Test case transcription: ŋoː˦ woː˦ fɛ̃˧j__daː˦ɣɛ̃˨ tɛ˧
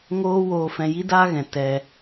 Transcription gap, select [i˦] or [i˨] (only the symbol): i˦